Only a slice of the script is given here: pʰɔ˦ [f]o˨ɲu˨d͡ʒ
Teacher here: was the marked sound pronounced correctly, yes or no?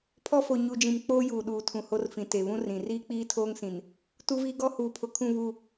yes